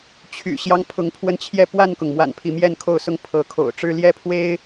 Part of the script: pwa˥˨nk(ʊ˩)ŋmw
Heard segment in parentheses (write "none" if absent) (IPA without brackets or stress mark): ʊ˩